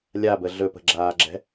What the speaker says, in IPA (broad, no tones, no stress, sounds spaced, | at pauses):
lʲ a b ə ɮ ɵ p ə̤ ɡ͡ǁ aː ɡ͡ǁ ɛ̤